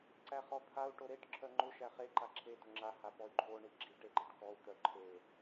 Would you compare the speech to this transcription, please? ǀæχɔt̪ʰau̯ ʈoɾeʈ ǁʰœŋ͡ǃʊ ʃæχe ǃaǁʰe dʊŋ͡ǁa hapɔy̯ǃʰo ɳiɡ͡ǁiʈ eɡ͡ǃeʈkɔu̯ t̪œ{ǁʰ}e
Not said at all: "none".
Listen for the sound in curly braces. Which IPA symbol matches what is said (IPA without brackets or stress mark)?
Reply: ǃʰ